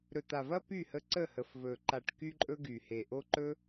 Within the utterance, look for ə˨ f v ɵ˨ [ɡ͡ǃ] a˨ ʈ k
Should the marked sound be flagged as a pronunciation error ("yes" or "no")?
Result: yes